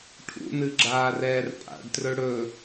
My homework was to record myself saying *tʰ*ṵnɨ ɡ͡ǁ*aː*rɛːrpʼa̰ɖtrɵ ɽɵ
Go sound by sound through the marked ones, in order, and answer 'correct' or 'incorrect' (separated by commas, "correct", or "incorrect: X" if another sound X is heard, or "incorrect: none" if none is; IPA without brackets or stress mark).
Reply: incorrect: ʈʰ, correct